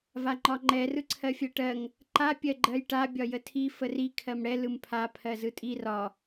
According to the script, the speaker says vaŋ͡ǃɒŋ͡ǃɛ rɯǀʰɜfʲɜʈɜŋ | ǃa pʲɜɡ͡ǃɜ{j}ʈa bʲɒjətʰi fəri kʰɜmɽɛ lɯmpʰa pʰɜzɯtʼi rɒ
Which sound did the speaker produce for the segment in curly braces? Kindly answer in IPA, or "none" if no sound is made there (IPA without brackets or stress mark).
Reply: j